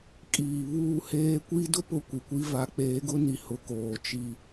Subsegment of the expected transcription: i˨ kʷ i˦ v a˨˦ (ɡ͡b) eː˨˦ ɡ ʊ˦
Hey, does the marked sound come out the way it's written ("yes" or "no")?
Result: no